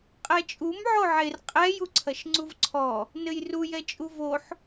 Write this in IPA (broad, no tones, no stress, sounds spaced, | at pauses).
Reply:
qʼ ɛ t͡ʃʼ u m ʕ o ʕ e r qʼ ɛ j u ǀʰ ɐ ʃ ŋ͡ǀ u v ǀʰ ɔ | n ɘ j r u j ɛ t͡ʃʼ u v o ħ